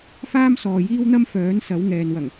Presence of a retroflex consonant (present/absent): absent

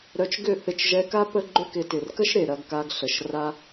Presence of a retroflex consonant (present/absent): absent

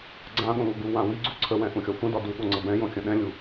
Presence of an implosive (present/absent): present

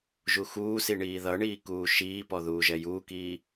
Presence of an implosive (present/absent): absent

